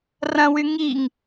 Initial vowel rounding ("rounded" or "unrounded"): unrounded